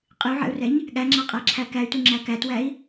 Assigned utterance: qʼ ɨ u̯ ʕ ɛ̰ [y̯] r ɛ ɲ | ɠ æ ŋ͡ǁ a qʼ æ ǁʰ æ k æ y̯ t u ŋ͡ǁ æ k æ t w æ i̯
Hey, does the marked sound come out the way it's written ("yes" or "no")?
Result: no